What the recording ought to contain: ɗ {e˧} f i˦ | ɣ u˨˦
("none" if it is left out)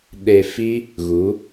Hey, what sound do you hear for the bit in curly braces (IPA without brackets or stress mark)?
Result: e˧